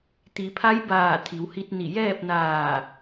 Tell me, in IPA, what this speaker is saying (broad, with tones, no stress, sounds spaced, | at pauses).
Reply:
t̪ i˩˧ pʰ a˧˥ j b aː˧˩ t̪ʰ i˩˧ w h i˧ t̚ n i˧˩ j ɛː˥˨ p̚ n aː˧˩